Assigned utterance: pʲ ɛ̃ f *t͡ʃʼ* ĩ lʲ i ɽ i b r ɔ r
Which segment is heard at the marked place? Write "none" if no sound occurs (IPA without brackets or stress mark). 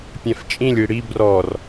t͡ʃʼ